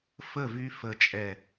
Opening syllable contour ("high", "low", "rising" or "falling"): falling